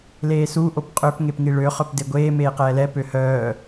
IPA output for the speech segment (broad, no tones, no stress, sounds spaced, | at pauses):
l eː s u ʔ o p qʼ ø p ŋ e p ŋ i ɭ ø χ œ p d e ɡʷ eː m eː q ɛː l ɛ p ø h œː